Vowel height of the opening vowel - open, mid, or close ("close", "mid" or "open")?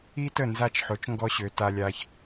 close